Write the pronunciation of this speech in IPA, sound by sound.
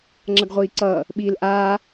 ŋ͡ǁ ʌ ɡ ʁʷ iː ǀ ʌː | ɓ iː l ʔ aː

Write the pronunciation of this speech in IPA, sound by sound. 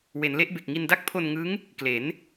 w e˩˦ n l e˦˥ ʔ b e˨˩ k̚ ŋ i˧ n d a˦˥ k̚ pʰ o˧ n ŋ ɯ˦˥ ŋ | k l e˩˦ n

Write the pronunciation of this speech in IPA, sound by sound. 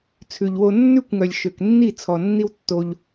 t͡sʰ ʉ˨ ʎ w o˧ nː ʉ˦˨ kʷ ŋ œ˨ lʲ ʃ ø˨ k nː i˦˨ t͡sʰ ɔ˨ nː i˦ w tː o˧ ʎ

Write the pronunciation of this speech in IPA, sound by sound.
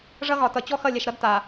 ʐ ʌ˦ ɣ ɒ˨ t ʌ˨ t͡ɕ ɔ˦ x ʌ˦˨ lʲ ɛ˨ ʃ ɾ ʌ˦ d t a˨

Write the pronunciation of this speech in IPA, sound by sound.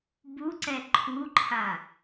b u ǀ ɛ ǃʰ u ǃʰ a

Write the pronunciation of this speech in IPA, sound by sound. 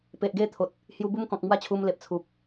p e˨ ʔ ɡ e˥˧ t̪ʰ o˨ t̚ | h j u˧ b u˦ m k ɔ̃˨ k̚ m w a˥˧ t͡ɕʰ u˧ m l e˨ p̚ t͡sʰ u˨ p̚

